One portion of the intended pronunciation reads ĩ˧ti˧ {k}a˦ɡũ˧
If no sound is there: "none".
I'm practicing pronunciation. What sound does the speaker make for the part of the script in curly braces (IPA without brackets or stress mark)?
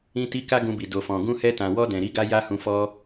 k